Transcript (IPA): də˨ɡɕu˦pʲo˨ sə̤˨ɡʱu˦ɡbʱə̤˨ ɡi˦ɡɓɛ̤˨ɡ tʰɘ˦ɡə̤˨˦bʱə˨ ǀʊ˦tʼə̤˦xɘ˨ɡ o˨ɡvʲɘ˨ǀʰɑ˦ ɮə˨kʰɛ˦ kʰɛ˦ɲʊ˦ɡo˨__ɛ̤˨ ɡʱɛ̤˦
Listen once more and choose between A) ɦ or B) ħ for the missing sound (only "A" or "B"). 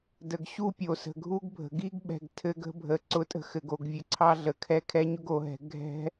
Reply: A